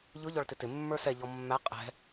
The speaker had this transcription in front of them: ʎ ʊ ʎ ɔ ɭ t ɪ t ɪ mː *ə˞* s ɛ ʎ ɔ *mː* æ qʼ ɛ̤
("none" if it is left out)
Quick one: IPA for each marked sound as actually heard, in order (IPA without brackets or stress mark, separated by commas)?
ə˞, mː